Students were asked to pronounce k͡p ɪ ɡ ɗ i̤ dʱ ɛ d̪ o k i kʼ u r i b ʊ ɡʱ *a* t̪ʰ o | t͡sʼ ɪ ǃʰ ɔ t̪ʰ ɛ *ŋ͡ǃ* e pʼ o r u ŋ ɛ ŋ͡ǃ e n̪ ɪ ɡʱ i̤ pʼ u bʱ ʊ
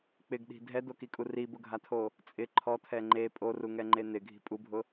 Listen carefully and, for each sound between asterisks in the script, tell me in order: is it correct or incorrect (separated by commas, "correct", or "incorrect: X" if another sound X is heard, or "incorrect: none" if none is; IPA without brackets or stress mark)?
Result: correct, correct